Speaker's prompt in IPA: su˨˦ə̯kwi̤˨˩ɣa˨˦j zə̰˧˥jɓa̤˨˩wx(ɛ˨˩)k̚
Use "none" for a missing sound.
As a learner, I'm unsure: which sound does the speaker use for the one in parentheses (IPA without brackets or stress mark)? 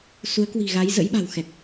ɛ˨˩